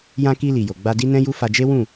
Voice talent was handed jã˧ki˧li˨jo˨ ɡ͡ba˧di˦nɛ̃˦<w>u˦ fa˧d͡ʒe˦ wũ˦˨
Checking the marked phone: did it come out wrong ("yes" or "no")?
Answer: yes